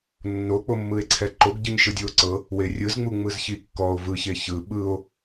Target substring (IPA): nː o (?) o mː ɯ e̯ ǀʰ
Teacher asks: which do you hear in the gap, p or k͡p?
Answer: k͡p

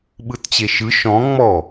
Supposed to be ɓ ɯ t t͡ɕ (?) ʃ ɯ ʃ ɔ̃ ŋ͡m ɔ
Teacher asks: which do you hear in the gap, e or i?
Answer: e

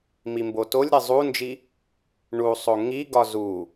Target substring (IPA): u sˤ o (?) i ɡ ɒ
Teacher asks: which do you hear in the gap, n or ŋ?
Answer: ŋ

